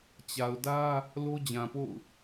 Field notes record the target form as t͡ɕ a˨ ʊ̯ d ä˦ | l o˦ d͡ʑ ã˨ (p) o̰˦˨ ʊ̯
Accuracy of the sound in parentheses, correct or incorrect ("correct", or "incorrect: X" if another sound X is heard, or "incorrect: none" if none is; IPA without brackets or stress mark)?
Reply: correct